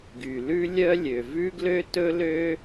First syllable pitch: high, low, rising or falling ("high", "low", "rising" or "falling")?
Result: low